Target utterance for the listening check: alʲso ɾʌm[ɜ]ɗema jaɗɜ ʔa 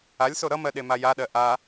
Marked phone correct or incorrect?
correct